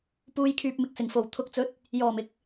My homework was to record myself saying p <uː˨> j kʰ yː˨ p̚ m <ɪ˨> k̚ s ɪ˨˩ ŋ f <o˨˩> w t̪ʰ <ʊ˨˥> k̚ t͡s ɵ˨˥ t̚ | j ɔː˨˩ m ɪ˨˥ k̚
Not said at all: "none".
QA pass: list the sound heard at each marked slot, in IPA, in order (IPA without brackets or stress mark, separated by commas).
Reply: uː˨, ɪ˨, o˨˩, ʊ˨˥